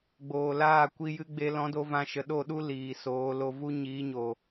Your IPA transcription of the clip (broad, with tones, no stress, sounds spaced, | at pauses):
ɡ͡b oː˨ l aː˦˨ kʷ i˧ j ɨ˧ ɡ͡b e˧ l ɔ̃˨˦ d o˧ v ã˧ ʃ ə˨ ɗ o˦˨ ɗ u˦ l iː˨ s oː˨˦ l o˧ v u˧ ɲ iː˨˦ ɲ o˨